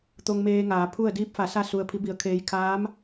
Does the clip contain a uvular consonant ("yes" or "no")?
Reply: no